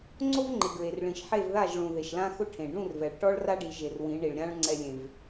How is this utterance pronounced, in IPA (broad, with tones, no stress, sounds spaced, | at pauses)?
ŋ͡ǀ o˦ v ŋ͡ǃ ɪ˨ ɡ ɹ e˨ r ɭ ĩ˨ ʃ ħ e˦˨ v ð a˦˨ ʒ ɭ ũ˨ ð e˨ ʃ l ã˦ x ʊ˦ ʈʰ ẽ˨ ɖ ũ˦˨ r v ɛ˨ ɭ ʈ ɔ˦ ɭ r a˦ ɖ i˨ ʒ e˨ r w ĩ˨˦ ɳ i˨ ɭ ɾʲ ã˦ ɭ ŋ͡ǀ ɛ˦ lʲ ẽ˦ v